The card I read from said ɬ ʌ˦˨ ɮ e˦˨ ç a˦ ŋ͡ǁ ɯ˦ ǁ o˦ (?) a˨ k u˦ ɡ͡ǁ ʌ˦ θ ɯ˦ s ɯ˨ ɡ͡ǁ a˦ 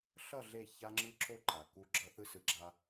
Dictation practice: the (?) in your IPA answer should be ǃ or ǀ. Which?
ǃ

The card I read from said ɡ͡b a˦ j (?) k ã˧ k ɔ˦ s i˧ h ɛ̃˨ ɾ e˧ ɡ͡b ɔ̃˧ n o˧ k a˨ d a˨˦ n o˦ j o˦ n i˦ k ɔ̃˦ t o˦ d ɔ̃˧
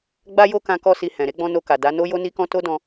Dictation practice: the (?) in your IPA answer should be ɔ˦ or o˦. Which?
o˦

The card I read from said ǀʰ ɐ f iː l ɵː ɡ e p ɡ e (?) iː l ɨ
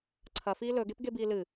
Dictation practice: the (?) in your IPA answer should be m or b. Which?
b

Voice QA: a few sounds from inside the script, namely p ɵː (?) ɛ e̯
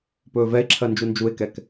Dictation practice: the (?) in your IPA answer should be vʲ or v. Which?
v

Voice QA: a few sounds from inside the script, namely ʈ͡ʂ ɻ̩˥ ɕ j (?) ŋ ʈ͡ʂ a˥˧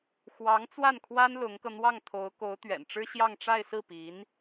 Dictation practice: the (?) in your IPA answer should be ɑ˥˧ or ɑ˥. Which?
ɑ˥˧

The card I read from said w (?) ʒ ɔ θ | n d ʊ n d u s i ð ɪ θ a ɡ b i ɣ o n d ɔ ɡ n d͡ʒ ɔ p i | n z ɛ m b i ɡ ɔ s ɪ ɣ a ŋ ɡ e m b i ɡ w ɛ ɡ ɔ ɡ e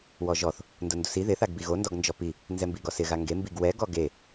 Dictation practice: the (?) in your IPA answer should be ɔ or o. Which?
ɔ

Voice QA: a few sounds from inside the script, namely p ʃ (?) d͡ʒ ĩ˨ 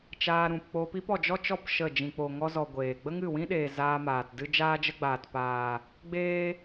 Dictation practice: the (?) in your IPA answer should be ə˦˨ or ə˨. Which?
ə˦˨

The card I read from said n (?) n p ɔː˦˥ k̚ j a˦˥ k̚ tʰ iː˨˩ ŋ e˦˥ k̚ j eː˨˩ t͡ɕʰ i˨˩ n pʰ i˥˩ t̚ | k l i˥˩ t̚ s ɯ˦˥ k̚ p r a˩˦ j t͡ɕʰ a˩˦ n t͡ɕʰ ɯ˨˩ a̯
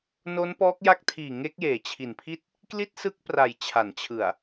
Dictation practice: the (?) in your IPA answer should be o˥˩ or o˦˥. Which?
o˦˥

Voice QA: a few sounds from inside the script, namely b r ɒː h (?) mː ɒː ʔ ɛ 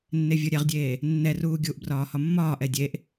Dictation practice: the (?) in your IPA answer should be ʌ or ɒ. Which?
ɒ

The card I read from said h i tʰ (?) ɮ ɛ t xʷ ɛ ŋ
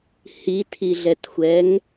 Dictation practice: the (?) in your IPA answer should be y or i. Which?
i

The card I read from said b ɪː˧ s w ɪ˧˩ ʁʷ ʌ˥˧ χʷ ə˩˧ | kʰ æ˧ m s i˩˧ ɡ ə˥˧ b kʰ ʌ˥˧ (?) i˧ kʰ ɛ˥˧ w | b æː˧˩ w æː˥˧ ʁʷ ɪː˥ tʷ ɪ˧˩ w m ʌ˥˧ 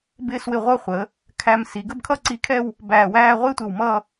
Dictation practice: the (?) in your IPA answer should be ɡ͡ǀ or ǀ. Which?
ǀ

